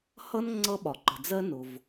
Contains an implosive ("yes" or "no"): yes